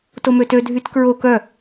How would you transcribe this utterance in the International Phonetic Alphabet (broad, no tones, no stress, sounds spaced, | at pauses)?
t o m ø t ø dʱ y t k ɹ o k œ